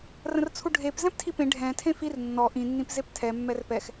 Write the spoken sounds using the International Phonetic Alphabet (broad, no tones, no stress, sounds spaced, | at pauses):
r ə̃ r t͡sʰ u ɖʱ e p z ɛ̃ p tʰ i p ẽ ɖʱ ɛ̃ tʰ ẽ f i r nː ɔ ʔ ĩ nː ĩ p z e p tʰ ɛ mː ɛ r p ɛ x